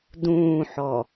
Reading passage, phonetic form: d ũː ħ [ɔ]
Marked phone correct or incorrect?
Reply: correct